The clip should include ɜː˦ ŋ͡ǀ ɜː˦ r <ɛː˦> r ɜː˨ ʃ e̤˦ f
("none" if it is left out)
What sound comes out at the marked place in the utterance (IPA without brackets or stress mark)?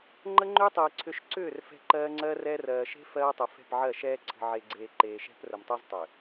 ɛː˦